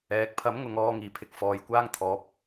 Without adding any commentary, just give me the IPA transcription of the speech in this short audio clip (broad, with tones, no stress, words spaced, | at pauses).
ɛː˨˥k̚ pʰɐ˨˥mŋʊ˨ŋ ɔː˧ŋiː˨˩pʰɪ˨˥k̚ fɔː˨˧j kʷaː˥ŋt̪ʰɔː˨˥p̚